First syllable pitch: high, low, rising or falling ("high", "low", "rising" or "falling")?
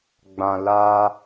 low